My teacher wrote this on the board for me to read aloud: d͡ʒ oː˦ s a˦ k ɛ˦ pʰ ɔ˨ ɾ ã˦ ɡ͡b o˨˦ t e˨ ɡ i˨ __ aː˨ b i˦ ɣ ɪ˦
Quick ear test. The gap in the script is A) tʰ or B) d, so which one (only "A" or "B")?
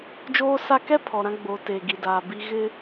B